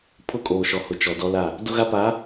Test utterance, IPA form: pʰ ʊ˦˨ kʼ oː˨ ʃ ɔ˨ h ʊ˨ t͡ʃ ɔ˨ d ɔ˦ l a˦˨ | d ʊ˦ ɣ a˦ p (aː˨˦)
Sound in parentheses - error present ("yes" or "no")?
no